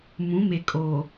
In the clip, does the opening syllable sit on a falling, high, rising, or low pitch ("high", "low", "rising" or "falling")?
rising